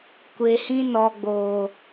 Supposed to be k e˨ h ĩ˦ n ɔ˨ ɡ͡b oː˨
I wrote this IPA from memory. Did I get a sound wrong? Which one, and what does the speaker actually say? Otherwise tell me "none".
k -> kʷ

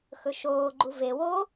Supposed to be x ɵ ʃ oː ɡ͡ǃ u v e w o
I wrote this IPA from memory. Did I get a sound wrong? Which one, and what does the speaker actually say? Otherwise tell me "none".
none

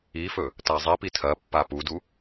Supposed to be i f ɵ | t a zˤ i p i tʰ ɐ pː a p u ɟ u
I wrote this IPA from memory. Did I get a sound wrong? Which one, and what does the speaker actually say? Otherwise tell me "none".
ɟ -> d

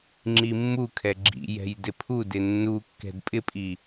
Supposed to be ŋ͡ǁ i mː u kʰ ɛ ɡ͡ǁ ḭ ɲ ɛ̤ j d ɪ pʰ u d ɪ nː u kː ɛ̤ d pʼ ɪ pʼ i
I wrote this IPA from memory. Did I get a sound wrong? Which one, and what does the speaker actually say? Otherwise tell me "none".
ɲ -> j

